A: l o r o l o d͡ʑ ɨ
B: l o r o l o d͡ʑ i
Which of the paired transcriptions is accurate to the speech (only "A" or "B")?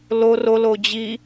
B